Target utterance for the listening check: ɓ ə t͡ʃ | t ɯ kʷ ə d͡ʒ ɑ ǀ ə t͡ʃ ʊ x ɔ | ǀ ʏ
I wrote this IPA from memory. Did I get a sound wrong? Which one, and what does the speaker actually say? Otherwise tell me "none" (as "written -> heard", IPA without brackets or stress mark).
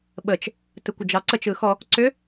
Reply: ʊ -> ɯ